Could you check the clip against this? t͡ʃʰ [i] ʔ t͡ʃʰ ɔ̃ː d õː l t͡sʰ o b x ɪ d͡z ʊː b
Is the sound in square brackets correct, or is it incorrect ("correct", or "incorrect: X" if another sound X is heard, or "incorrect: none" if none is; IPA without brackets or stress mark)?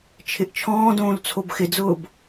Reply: incorrect: ɪ